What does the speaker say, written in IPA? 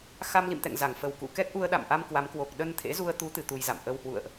x a˧ m l ḭ˧˨ m t̪ ɛ̰˧˨ ŋ z a˧˩ ŋ f ə˨˩ w k ṵ˧˨ k ɛ˦˥ k̚ ʔ u˧ ə̯ ɗ a̰˧˨ m ʔ a˧ m k w a˨˦ m k w o˨˩ k̚ ɗ ə˧ n t̪ʰ ḛ˧˥ z u˧ ə̯ t̪ u˨˦ t̪ ɨ˧ t̪ u˧ j z a̰˧˨ m ʔ ə˧ w h w ṵ˧˨ ə̯ ʔ

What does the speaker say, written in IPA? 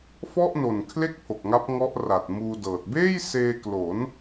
f ɔ˥˩ ʔ n o˨˩ n kʰ l e˥˩ k̚ pʰ o˨˩ k̚ ŋ a˦˥ p̚ ŋ ɔ˦˥ ʔ r a˨˩ t̚ m uː˧ d ɤː˨˩ t̚ b eː˥˩ j s eː˧ k l o˩˦ n

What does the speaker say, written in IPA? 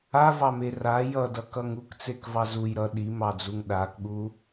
a v ɑ m e r a j ʌ d ʌ k ʌ ŋ u k t͡s e k v ɑ z u j ɾ ʌ ɗ i m ɑ d͡z u ŋ ɗ a k ɠ u

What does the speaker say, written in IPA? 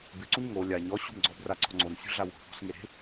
b ɪ ǀ u ɲ ŋ o lʲ a ɲ ɔ ɕ ṳ m ɡ͡ǀ ɔ b r a ǀ ɔ̤ ŋ͡ǀ o n sʲ ṳ ɮ a w o̤ p ɔ̤ s ŋ e ɾ e̤

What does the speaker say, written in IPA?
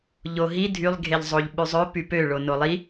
ʎ o ɦ i dʱ y lˠ ɡʱ e ʎ zˤ o ʎ ɓ y zˤ ø p y p ø ɭ o n o lˠ i

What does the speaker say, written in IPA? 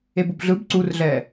e b u b ɮ ɯ b ǀ u r ɮ ɛː

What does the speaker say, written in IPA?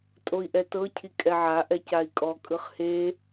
tʼ o i̯ ʔ ɛ t ɤ cʰ i kʼ ɛ ʕ a ʔ ɛ c a i̯ kʼ ɔ kʼ ɯ χ h e

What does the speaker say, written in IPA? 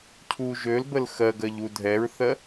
cʰ u ʒ ø l b ə l x ɜ ɡ ɜ ʎ u dʱ ɛ ɹ θ ɜ

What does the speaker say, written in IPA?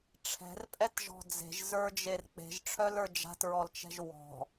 ʈ͡ʂʰ ɛ̤ r pʼ ɛ t ʒ ɔ̤ d͡z e̤ ʒ z ə˞ d͡ʒ e r k͡p e̤ ʒ ʈ͡ʂʰ œ l ə˞ d͡ʒ a̤ t ɹ ɔ l t͡ʃ ɛ̤ ʒ w ɔ̤

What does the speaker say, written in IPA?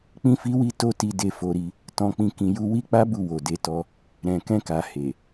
k͡p ĩ˦ f i˦ w i˦ t o˦ t i˧ d e˧ f o˧ ɾ i˧ | t ɔ̃˧ k͡p ĩ˧ k ĩ˧ j u˧ w i˦ k͡p a˦ b u˦˨ w o˨ d e˨˦ t ɔ˧ | ɾ ɛ̃˨ k ɛ̃˧ k a˨ h e˨

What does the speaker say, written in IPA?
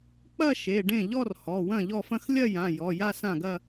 k͡p ɐ˥˧ ʃ e˩˧˩ ɖ ẽ˥˩ ʎ ɔ˥˧ r h ɔ˩˧˩ w ɐ̃˥˩ ʎ ɔ˥˩ f ɐ̃˥˧ x lʲ ɐ˥˧ j ã˩˧˩ j ɔ˩˧˩ j a˥˧ s ã˥˩ ɡ ɐ˥˧

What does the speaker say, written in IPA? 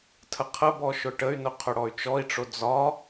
tʰ ə qʰ ə b ɔ ʃ ʊ ʈ ə y̯ n ʊ qʰ ʊ ɽ ɔ y̯ t͡ʃ ɔ i̯ ʈ͡ʂ o d͡z ɒ

